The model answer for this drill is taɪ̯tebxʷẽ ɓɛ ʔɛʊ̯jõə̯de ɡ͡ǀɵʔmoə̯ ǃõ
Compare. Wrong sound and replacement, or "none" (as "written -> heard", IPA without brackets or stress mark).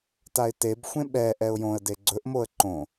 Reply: none